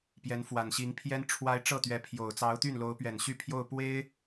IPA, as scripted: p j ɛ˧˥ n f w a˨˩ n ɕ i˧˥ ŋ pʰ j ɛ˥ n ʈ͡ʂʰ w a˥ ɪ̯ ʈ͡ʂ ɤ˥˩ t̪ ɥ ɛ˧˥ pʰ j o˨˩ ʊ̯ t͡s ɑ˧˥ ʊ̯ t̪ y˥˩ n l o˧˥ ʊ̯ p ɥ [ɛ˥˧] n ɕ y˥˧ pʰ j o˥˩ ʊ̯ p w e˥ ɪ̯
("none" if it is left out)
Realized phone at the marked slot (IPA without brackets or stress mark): ɛ˨˩